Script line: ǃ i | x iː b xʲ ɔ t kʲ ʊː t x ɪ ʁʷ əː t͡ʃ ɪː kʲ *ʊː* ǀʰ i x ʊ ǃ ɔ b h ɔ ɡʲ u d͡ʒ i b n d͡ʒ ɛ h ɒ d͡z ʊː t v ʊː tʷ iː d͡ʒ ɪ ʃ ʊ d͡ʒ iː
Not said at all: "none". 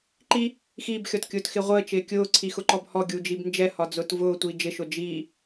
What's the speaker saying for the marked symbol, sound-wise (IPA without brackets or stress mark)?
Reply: ʊː